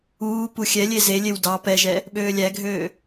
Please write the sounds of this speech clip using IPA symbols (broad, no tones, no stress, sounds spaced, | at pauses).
uː p u xʲ ɛ lʲ e z e lʲ e w d ɑ p ɛ ʒ ɛ | ɓ øː lʲ æ ɡʱ øː